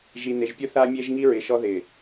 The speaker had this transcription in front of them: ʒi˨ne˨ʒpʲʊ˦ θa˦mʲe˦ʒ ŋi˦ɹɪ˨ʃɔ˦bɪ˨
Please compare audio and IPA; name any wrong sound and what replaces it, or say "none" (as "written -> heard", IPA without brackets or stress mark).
b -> ð